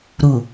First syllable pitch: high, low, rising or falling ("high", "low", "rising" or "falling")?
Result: low